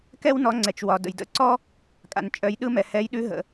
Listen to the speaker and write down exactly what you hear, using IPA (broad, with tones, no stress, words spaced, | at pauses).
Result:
kɛ˥wnɔ˨˥ ŋ͡ǀɛ˩t͡ʃwɒ˩ də̰˩jdə̰˨˥ǀɔ˥ | kʼa̰˩nt͡ʃʼœ˨˥j ɗɯ˥mɛ˩ hɛ˨˥jɗʉ˨˥ɦə̰˩